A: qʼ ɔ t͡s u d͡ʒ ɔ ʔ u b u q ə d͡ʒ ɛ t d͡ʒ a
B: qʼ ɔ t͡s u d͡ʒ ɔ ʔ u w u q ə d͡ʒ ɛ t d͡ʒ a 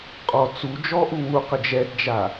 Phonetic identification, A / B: B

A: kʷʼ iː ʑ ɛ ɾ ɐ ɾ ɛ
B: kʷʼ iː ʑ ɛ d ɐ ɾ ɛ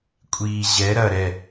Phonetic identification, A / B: A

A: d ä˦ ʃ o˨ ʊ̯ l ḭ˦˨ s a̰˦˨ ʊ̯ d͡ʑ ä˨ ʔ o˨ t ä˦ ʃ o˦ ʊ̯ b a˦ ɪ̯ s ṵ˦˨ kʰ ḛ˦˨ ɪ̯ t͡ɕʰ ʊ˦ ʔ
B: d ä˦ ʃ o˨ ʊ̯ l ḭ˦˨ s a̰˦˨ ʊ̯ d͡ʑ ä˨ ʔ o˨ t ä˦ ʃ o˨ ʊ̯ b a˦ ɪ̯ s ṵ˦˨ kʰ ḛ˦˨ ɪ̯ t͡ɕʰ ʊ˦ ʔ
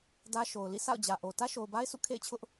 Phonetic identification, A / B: B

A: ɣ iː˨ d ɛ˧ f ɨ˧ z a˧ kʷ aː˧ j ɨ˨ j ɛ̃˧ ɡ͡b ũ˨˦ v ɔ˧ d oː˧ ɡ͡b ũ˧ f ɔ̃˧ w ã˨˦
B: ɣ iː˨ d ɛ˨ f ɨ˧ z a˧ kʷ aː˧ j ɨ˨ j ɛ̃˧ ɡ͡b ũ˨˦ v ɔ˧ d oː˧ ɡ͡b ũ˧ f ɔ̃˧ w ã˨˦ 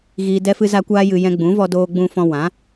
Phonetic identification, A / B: A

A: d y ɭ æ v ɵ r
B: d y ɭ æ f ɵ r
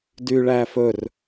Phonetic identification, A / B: B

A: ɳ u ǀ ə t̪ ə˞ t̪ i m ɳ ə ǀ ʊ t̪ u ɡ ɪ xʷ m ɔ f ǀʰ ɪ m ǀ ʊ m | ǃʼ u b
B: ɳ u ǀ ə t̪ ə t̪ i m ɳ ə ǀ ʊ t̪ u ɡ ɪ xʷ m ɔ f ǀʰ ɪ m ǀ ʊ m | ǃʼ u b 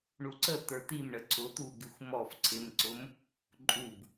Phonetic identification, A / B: A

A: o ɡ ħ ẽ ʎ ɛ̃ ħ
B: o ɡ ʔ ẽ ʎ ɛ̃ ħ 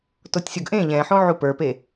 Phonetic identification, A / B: B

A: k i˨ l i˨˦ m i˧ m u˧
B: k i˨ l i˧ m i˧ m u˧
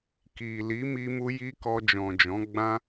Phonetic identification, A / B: A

